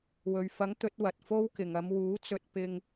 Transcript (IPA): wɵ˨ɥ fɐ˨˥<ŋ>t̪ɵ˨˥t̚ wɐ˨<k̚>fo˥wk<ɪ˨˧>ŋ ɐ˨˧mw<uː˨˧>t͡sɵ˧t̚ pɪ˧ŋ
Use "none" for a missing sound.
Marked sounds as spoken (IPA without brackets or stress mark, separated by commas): ŋ, t̚, ɪ˨, uː˨˥